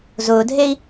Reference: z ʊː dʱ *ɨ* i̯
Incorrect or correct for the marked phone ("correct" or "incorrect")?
incorrect